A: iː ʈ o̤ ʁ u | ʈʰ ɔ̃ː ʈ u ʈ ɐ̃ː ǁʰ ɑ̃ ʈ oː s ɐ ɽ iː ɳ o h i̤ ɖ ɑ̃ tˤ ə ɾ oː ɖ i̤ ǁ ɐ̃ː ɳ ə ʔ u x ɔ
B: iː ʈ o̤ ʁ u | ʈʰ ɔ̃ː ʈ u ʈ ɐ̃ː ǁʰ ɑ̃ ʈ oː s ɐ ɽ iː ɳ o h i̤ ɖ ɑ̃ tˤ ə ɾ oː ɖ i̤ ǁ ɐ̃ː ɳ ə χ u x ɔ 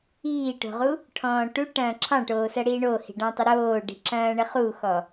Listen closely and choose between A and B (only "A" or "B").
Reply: B